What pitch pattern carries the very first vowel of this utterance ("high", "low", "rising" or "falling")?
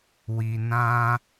low